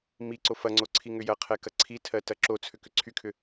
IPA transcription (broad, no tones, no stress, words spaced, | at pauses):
miǀo fɐŋ͡ǀoǀʰi ŋʏjɐqʰɛkɐ ǀʰitʰɜtɐ ǁo t͡sʰʏkʏǀʰykʰʏ